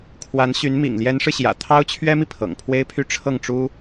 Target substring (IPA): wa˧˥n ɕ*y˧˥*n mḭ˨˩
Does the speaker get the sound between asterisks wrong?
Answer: no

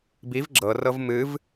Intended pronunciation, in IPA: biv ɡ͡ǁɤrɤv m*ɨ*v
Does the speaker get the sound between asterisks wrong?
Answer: no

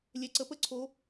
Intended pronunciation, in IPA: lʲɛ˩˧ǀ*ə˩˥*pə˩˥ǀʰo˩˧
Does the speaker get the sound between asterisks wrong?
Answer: no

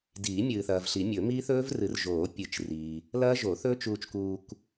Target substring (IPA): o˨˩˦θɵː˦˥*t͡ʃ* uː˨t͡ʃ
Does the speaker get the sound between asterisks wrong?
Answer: no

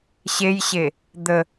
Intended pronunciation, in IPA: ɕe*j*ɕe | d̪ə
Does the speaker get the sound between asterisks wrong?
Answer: no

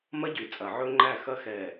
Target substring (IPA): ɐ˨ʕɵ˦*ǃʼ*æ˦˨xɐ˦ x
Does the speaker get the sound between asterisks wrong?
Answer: yes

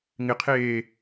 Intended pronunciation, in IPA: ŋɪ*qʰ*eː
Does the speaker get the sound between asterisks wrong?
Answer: no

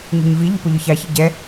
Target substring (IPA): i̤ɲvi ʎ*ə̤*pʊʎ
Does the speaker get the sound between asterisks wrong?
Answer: no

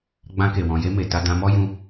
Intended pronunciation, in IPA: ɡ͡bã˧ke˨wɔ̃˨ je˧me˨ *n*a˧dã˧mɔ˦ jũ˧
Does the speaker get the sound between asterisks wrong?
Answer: yes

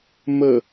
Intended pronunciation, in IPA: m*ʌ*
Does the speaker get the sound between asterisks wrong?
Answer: yes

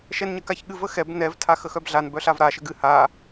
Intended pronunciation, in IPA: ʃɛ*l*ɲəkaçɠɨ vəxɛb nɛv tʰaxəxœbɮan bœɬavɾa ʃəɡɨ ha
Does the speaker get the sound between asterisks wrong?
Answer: yes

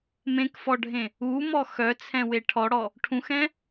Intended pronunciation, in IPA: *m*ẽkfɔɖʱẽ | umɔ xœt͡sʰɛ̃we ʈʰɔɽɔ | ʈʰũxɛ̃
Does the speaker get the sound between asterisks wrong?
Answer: no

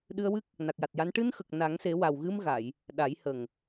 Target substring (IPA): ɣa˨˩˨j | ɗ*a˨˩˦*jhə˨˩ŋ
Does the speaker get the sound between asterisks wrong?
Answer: no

